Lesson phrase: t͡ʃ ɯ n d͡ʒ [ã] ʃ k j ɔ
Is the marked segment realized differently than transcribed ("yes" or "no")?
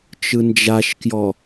yes